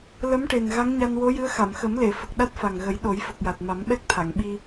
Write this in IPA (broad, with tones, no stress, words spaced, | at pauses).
lə˧˥mʈe˨˩n ɣa˧˥ŋɲa˧nwo˧˥jɨ˧˥ə̯ xa˨˩˨mxə˨˩˦mle˨˩˨ fə˨˩k̚ɗa˦˥t̚fa˨˩ŋɣə˨˩˦j ɗo˨˩˦jfə˨˩k̚ja˨˩t̚ ma˨˩˦mɓɛ˦˥k̚t̪ʰa˨˩˨ŋ ɓi˧